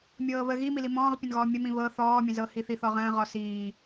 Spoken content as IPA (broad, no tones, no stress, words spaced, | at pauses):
mʲɤːβə ɣimili mɔ̃ːʁpʲə̃nɣɔː mʲəmĩ βɤ θɔːmʲə̃zɤ hiθiθɔʁə̃ː ʁɔsiː